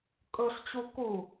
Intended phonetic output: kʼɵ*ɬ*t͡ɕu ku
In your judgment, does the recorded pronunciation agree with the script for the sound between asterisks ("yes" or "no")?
yes